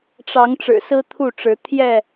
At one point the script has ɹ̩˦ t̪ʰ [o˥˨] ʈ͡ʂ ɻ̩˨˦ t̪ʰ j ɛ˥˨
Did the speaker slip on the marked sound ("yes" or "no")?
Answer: yes